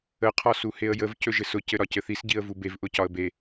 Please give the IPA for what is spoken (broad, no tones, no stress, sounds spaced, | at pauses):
ə qʰ ɒ s u h e ə̯ j ə v c ɵ ʒ ɘ s ʊ c ɘ ɾ ɒ c ɘ θ i s ɟ i ə̯ v u b e v ʔ ʊ c ɒ ə̯ b e